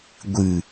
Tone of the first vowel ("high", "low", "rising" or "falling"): low